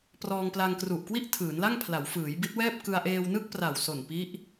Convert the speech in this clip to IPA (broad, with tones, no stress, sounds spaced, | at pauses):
p r ɔː˧ ŋ p l a˧ ŋ k r u˨˩ ʔ k w i˥˩ ʔ tʰ ɯː˩˦ n l a˥˩ ŋ pʰ l a˩˦ w f ɯː˩˦ j b i˦˥ t̚ w ɛː˥˩ p̚ k ɯ˧ a̯ ʔ eː˧ w n ɯ˥˩ k̚ p r a˨˩ w s o˨˩ n p i˦˥ ʔ